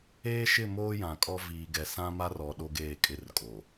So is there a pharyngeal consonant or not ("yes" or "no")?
no